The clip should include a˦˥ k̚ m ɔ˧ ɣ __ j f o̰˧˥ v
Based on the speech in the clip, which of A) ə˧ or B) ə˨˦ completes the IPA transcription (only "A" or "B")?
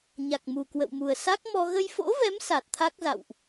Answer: A